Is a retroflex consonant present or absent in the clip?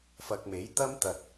absent